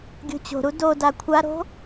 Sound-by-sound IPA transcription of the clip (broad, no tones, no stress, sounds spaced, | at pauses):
ɡʲ o̤ t͡ɕ o̤ ɾ u d o d a kʷʰ a ɾ o̤